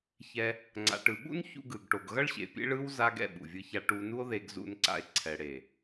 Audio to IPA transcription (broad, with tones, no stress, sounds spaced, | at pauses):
ç ɛ˧ | ŋ͡ǀ a̰˨ ʈ ɯ˨ ɓ ṵ˦ n ç ṵ˧ ɡ ɯ˨ ɡ ʈ o˨ ɡ ɣ ʌ˦ ɭ ɕ ḛ˨ pʲ ḛ˦ ɭ ɯ˦ w z a˧ ɡ ɛ̰˦˨ ɓ ṵ˨ vʲ ɯ˧ ç a˧ ʈ u˧ n u˦ o̯ ð e˧ ɡ z ṵ˧ n ǀ a̰˧ e̯ ǀʰ ɛ˨ ɽ e˨